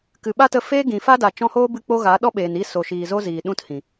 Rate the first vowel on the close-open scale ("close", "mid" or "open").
close